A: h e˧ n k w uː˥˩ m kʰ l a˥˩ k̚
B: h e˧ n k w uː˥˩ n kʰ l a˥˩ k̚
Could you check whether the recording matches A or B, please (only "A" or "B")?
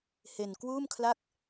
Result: A